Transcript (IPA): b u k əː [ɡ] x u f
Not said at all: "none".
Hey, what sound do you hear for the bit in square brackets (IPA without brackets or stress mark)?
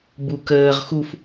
ʁ